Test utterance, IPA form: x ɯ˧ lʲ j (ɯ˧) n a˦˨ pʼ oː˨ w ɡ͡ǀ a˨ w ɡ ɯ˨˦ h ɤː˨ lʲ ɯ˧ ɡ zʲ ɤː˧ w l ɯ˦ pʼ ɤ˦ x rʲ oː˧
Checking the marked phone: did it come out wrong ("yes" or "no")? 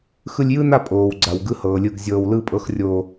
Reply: yes